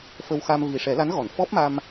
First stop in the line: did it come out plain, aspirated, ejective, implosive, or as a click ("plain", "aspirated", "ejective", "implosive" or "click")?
plain